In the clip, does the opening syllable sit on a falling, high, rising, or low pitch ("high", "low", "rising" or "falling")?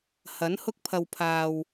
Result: rising